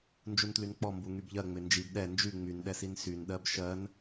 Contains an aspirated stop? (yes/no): no